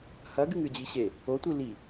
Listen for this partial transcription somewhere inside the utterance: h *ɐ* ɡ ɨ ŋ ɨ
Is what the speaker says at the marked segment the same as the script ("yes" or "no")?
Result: yes